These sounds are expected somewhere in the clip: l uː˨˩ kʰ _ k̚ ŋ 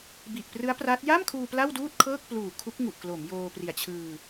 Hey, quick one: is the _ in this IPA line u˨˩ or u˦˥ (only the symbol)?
u˦˥